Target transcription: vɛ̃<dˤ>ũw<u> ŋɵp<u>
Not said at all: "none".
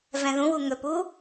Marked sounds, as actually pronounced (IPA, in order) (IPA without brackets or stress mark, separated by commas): ð, u, u